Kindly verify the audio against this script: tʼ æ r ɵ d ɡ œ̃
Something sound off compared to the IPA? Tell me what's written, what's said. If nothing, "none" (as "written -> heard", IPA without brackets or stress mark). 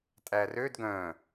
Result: ɵ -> ø